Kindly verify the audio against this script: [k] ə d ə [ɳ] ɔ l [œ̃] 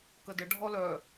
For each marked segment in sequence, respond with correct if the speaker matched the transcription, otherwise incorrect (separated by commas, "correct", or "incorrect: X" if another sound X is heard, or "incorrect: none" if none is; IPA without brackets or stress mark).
correct, incorrect: ɖʱ, incorrect: œ